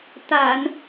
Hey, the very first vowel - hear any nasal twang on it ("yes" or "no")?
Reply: no